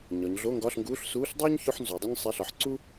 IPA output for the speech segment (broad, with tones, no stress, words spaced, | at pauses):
ɲɒ˩˧ɲɮo˧˥˧ŋɡɒː˧˥˧ɬŋɡuː˧˥˧ɬ suː˧˥˧ɬ dˤuː˥ɲço˧˥˧ħ nzo˩˧dˤo˥ɲ sˤe˧˥˧ɬɒ˧˩ħ ǀu˥